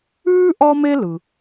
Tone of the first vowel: high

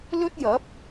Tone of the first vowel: high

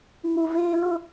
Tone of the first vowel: low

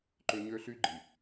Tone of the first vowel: high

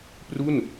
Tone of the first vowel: falling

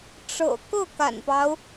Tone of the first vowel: low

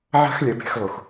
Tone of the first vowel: high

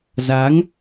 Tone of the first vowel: rising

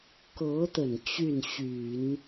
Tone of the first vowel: rising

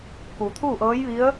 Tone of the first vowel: low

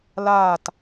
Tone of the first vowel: falling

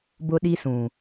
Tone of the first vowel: high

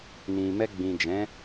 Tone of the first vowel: low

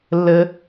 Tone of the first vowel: high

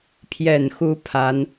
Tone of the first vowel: low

